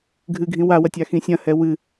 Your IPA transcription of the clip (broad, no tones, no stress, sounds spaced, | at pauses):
ɡʱ ɨ ɡʱ ĩ w a w ɐ tʲ a x ĩ sʲ ɐ̃ h ɛ w ɨ